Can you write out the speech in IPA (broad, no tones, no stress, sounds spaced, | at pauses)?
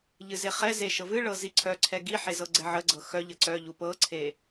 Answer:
ʎ ɨ z e χ ɛ z e ʃ ɤ v ɨ ɭ ɤ z i ǀʰ œ ǀʰ ɛ ɡ i ħ e z ɤ ɡ͡ǀ ɛ ʕ ə ɡ͡ǀ ɤ x œ ʎ ə ǀ œ ʎ u p ɤ ǀʰ e